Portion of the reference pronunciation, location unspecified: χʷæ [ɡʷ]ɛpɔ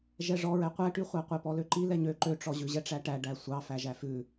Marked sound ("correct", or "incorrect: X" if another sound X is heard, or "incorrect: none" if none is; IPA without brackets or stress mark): incorrect: qʷ